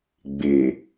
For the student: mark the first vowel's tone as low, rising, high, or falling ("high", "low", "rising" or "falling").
low